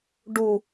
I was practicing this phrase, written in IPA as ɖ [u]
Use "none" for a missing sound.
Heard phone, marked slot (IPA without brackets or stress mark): u